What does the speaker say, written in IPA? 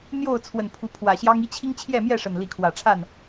n̪ j o˥˨ ʊ̯ t͡sʰ w ə˨˩ n pʰ u˨˦ pʰ w ä˨˩ ɕ j ɑ˦ ŋ i˦ t͡ɕʰ i˦ ŋ t͡ɕʰ j ɛ˥˨ m j ɛ˥˨ ʂ ə˨˩ n l i˨˦ kʰ w ä˨˩ ʈ͡ʂʰ a˥˨ n

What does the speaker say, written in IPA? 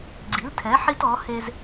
ɡ͡ǀ i˨˥ l tʰ ɛ˨˥ ħ i˦ t ɔ˨˥ h e˦ z

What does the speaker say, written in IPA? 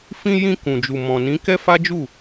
f ĩ˧ j ĩ˧ k ũ˨ d͡ʒ u˨ m ɔ̃˨ n ĩ˨˦ k ɛ˦ f a˦ d͡ʒ u˦˨

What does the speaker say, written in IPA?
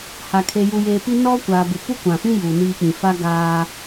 h a˨ kʰ e˨ j u˨ j eː˨ p i˦ n ɔ˦ kʷ a˨ b ɪ˨ p u˦ kʷ ã˨ f ĩ˦ j uː˨ n iː˦ k͡p ĩ˨ f a˦ ɡ aː˦

